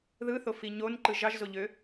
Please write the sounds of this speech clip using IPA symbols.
ðɯθofi ɲonǃɯ ʒɑʒzoʎø

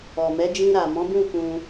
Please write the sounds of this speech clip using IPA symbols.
ɔ˨mɛ˨˦ d͡ʒĩ˧ɾa˨mɔ̃˨˦bũ˦˨ kũ˧

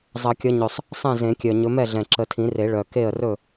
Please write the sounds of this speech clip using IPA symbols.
zˤʌ˨˩˦kʲʌ˨˦ɲɵ˨˩sˤ | sˤɛ̃˥˩zẽ˨˩˦kʲœ˨˩ ɲɵ˨˦mɛ˥˩ɮɛ̃˨˩ ǁə˨˩˦tʰĩ˨˩˦re˨˩˦ ɭœ˨˩ ke˥˩ə̯rɵ˥˩

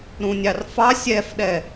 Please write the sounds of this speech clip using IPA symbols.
ɾũnʲɑrfɑ sʲɛfɗɛ

